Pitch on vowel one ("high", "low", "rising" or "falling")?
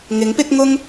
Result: rising